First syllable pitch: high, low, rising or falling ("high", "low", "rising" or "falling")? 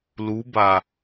rising